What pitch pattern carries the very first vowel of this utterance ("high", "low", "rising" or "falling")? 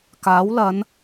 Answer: rising